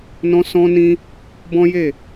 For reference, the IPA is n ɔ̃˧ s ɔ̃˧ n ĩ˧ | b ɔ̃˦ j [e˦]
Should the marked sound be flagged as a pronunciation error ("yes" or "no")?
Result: yes